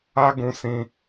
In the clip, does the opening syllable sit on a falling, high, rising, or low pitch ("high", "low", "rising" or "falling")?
high